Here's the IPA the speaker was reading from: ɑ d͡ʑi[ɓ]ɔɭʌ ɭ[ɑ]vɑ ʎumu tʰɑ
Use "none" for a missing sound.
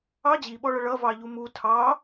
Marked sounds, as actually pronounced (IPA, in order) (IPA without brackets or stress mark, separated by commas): ɓ, ʌ